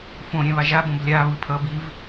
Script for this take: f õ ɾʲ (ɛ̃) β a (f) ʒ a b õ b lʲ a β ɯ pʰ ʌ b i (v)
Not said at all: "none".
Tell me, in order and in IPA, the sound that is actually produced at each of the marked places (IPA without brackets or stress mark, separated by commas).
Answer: ɛ̃, none, v